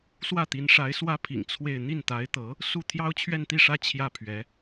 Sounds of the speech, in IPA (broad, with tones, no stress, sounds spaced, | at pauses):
s w ä˥˩ t̪ i˧˥ n ʂ a˧˥ ɪ̯ s w ä˥ pʰ ḭ˨˩ ŋ t͡sʰ w e˥˧ ɪ̯ n̪ i˥˩ n t̪ a˧˥ ɪ̯ t̪ ɤ˧˥ | s u˥˩ t̪ʰ j ɑ˥ ʊ̯ t͡ɕʰ ɥ ɛ˥˧ n t̪ i˥˩ ʂ ä˥ t͡ɕʰ j ä˥˩ pʰ ɥ ɛ˧˥